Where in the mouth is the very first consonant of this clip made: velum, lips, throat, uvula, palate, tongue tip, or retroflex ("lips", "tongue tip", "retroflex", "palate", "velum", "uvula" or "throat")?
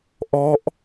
throat